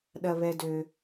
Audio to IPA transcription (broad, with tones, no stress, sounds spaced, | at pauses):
ɗ ɐ˨ β ɛ˨ d ø˨